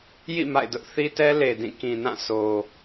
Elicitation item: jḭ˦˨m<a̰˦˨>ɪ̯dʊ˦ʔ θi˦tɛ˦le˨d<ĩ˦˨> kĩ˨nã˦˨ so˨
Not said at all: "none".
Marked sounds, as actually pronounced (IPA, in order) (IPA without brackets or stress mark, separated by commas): a̰˦˨, ĩ˦˨